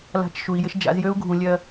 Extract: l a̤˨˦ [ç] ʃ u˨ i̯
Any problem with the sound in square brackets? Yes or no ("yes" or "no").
yes